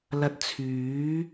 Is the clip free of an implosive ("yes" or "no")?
yes